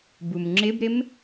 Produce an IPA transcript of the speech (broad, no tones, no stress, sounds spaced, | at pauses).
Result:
b u m ŋ͡ǁ ɪ b ɾ ɪ m